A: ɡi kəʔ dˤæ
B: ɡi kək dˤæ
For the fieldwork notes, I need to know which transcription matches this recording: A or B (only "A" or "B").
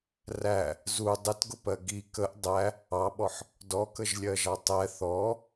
A